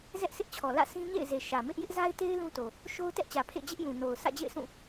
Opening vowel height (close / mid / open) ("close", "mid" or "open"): mid